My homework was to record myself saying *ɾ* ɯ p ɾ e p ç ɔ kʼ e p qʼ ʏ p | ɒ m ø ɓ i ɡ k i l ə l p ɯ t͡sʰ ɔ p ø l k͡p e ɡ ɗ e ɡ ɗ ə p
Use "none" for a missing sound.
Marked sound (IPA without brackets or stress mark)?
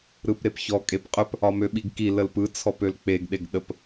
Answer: ɾ